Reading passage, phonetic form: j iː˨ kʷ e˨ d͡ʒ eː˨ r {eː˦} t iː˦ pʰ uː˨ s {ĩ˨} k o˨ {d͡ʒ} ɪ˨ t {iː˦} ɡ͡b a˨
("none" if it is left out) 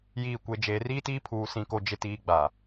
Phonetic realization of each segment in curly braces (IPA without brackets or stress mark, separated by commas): iː˦, ĩ˨, d͡ʒ, iː˨